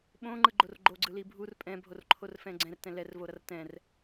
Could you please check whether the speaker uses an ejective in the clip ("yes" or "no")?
yes